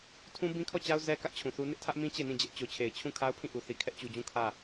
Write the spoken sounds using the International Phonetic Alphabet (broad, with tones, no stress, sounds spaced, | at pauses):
tʰ ũ˦ b ĩ˦ kʰ ɔ˦˨ t͡ɕ a˦ ʊ̯ z ɛ˦ k ä˦ ʔ t͡ɕʰ ũ˨ θ u˦ n ɪ˦ ʔ tʰ ä˦ ʔ m ĩ˦ t͡ɕ e˦˨ n ĩ˦˨ d͡ʑ ɛ˦ ʔ t͡ɕ o˨ t͡ɕʰ e˨ ɪ̯ t͡ɕʰ ũ˦˨ kʰ a˦ ʊ̯ pʰ ĩ˦˨ ʔ u˨ θ i˨ kʰ ɛ˦ ʔ t͡ɕ u˨ d͡ʑ ũ˦˨ kʰ ä˦˨